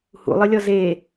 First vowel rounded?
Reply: yes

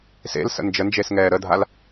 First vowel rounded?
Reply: no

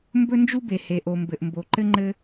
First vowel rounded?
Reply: yes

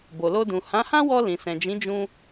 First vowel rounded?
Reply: yes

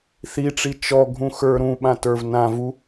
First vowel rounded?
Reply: no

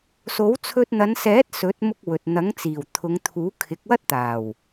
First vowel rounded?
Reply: yes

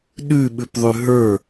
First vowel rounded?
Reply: yes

